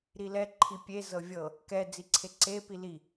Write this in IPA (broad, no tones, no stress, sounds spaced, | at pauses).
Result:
ɾ i l ɛ ǃʰ i pʲ e z ɤ vʲ ɤ | k ɛ d͡z i ǀʰ e ǀ e p i l i